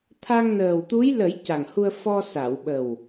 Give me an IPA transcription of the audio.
t̪ʰ a˧ ŋ n əː˨˩ w t̪ u˧˥ j l ə˨˩˦ j c a˨˩ ŋ h u˧ ə̯ f ɔ˧ s a˨˩˨ w ɓ ə˨˩ w

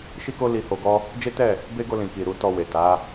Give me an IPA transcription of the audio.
ʃ i˦ k o˦ l i˧ h o˧ ɡ ɔ˦ | d͡ʒ e˦ t ɛ˦˨ | b e˦ ɡ o˧ l ĩ˨ k i˨ ɾ u˨˦ t ɔ˧ w e˨ t a˨˦

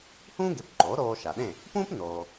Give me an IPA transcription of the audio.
h ũː˥ ɡ e˩˥ p ǃ oː˩˥ ɾ oː˧ ʃ a˩ ɗ ẽ˥˩ | p ũː˥ p n oː˩

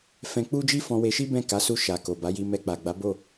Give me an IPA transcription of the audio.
f ɛ̃˧ k͡p u˦ d͡ʒ i˦ f ɔ̃˧ w e˧ ʃ i˦ b ɛ̃˦˨ k a˨˦ s u˧ ʃ a˨ k o˨ b a˨˦ j i˧ m ɛ˧ k͡p a˨ ɡ͡b a˨˦ b o˦˨

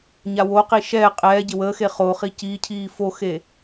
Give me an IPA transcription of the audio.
ɲ a w o q i ʃ ɛː qʼ ɛː ɟ e w əː x e χ oː χ i c iː cʰ iː f o x e

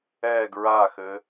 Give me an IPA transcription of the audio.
ɛ ɡ ɹ a x ɘ

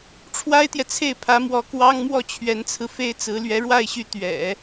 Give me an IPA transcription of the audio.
ʈ͡ʂʰ w a˥ ɪ̯ t̪ j ɛ˨ t͡sʰ e˥˩ ɪ̯ pʰ ä˧˥ m w ɔ˧˥ k w ɑ˥ ŋ m w ɔ˥˩ t͡ɕʰ ɥ ɛ˧˥ n t͡sʰ ɹ̩˧ f e˥ ɪ̯ t͡s ɹ̩˧˥ l ɥ ɛ˧˥ ɻ w a˥˩ ɪ̯ ɕ y˧˥ t̪ ɥ ɛ̰˨˩˦

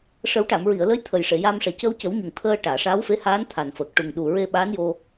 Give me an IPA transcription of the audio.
ʂ ə˨˩˦ w ʈ a˨˩˨ m ɹ i˨˩˨ ə̯ l ə˧˥ j t̪ʰ ə˨˩ j ʂ e˨˩˨ j aː˧ m ʂ ɛ˨˩ c əː˧ w c ə˨˩˦ w ɲ u˨˩ ŋ t̪ʰ əː˧ ʈ aː˨˩˨ ʂ aː˧˥ w f e˧˥ h aː˧˥ n t̪ʰ a˨˩ n f əː˨˩ k̚ ʈ u˨˩ ŋ ɗ u˨˩ ɹ e˧ ɓ aː˧˥ n j o˧

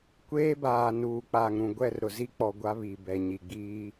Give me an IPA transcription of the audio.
kʷ eː˦ b aː˨ n uː˨ k͡p aː˨ ŋ ɾ ũ˨ ɡʷ ɛ˦˨ r ɾ ʊ˨ z i˦ k͡p ɔ˨ ɡʷ a˦ β i˨ b ɛ˨ ɲ i˨ ɡ͡b iː˦

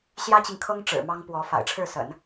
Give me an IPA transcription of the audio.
ɕ j ä˥ t͡ɕ i˨ ŋ kʰ ɤ˥ ŋ ʈ͡ʂ ɻ̩˨˩ m ɑ˥ ŋ p w ɔ˧˥ f a̰˨˩ ɪ̯ ʈ͡ʂʰ ɻ̩˥˩ s ə̰˨˩˦ n

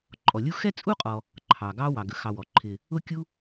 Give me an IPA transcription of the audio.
ǃʼ ɔ˩ lʲ u˦ x ɛ˥ t͡sʼ u˥ qʼ ɔ˨ | ǃʰ ɑ˩ ɡ ɑ˦ w ɑ˩ ɡ ə˩ x ɑ˨ w ɔ˩ ǃʰ ɪ˨ | ʊ˦ kʲ u˦

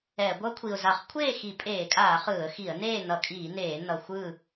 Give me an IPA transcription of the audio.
ɛ˧˩˧ ɡʷ ʌ˦˥ kʷʰ i˨˩ ʊ̯ z a˧˩˧ χ kʷʰ eː˥˨ x i˧˩˧ pʼ eː˧˩˧ kʼ aː˧˩˧ χ ɯː˧˩˧ ə̯ x i˧˩˧ ə̯ n eː˥˨ n ʌ˧˩˧ kʼ iː˧˩˧ n eː˧˩˧ n ʌ˨˩ xʷ ɯː˥˨

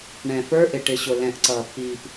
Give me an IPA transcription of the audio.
ɳ ɛ̃˨ f ə˞˦ ʔ ɪ˨ ʈ ɪ˨ ɕ ʊ˨ l ɛ̃˨ ʔ ǀ ʌː˨ pː iː˨ p

